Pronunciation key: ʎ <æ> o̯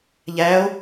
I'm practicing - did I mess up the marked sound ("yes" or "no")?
no